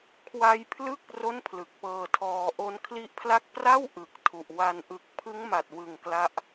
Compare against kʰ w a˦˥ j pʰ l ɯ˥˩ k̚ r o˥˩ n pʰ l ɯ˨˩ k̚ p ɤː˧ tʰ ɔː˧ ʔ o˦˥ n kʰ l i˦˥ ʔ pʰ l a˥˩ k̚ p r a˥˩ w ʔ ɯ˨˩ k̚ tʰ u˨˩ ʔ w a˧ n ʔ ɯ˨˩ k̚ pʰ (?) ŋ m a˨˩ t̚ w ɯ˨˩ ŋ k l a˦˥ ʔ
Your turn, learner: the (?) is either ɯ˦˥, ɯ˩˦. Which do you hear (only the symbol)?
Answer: ɯ˦˥